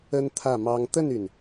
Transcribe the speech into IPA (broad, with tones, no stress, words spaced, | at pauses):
ə˥nt̪ʰä˥˩mɑ˥ŋ t̪ə˥˩ny˩n